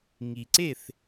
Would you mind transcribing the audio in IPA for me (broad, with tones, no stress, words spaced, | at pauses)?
ŋi˨ǀe˥˨θ